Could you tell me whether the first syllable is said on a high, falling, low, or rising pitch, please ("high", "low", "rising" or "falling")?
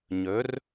rising